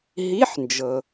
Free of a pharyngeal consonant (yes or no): no